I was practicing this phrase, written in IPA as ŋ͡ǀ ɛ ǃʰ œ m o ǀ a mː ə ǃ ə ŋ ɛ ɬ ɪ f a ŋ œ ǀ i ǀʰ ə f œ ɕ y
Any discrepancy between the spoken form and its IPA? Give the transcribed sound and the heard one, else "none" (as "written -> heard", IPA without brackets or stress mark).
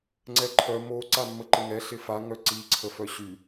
none